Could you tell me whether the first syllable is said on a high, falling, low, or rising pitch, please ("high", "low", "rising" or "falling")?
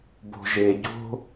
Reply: low